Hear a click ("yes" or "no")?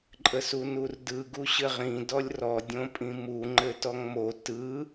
yes